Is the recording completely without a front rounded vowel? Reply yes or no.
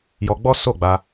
yes